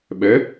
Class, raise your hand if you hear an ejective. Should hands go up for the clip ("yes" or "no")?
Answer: no